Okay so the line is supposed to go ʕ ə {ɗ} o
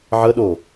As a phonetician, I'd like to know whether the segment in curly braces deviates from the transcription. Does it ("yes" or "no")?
no